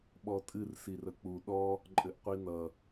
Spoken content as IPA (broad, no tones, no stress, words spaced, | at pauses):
ɓɔtʼɨr sirək͡pu ɗɔ | ǃʼɘʔqʷinʌ